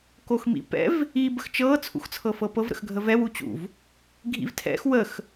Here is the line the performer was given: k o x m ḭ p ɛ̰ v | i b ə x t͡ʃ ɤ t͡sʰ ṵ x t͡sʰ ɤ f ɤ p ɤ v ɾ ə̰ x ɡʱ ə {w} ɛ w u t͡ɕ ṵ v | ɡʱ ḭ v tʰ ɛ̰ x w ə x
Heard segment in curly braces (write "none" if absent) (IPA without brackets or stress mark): v